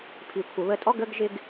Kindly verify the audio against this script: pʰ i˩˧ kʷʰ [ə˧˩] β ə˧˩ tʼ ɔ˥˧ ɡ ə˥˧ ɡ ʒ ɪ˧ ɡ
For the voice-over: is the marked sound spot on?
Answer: no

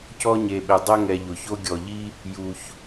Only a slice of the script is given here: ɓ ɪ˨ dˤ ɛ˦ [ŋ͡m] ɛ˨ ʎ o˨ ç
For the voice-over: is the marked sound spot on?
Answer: no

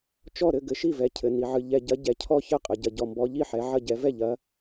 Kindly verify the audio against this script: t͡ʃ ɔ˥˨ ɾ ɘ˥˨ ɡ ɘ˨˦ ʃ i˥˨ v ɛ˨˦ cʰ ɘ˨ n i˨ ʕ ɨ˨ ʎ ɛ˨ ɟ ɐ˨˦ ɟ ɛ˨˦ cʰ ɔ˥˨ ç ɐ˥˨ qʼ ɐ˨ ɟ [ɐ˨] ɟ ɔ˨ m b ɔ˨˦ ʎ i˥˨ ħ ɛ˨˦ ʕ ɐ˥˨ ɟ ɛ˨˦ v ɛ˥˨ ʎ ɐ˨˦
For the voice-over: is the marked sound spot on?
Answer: yes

